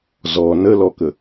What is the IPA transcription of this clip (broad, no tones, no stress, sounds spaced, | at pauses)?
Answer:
z ɔ n ə l ɔ k ə